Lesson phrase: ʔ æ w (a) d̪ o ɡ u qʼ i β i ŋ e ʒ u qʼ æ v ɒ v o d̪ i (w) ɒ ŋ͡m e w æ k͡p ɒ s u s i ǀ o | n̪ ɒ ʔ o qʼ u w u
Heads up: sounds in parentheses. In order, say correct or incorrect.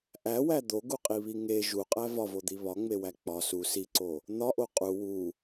incorrect, incorrect

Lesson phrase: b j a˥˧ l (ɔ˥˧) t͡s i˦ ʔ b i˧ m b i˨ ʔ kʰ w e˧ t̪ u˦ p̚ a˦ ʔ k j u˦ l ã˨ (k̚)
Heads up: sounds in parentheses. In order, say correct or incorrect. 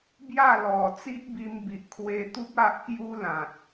incorrect, incorrect

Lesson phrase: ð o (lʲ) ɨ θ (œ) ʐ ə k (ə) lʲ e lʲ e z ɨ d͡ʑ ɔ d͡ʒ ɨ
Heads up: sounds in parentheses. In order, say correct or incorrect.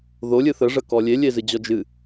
correct, incorrect, incorrect

